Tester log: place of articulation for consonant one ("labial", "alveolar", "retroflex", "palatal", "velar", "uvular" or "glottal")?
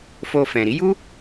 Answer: labial